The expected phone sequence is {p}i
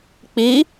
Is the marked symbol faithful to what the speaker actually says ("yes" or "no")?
no